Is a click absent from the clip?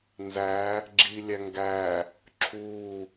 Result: no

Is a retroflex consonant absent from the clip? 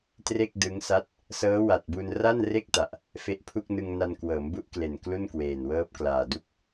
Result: yes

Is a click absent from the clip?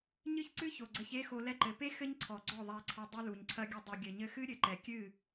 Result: no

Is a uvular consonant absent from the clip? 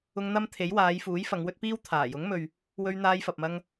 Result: yes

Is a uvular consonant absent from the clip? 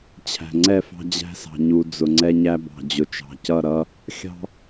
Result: yes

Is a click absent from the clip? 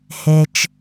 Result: yes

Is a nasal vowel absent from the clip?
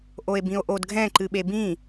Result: no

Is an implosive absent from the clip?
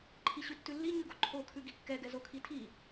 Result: yes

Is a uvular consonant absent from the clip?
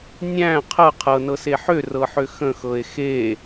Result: no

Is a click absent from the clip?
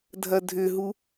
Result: yes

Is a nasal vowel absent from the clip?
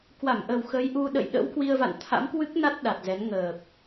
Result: yes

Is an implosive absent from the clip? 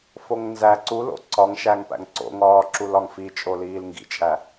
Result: yes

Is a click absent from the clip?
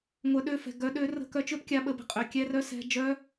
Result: yes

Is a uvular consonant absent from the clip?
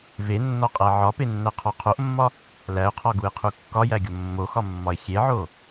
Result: no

